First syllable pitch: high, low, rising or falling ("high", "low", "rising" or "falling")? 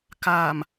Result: low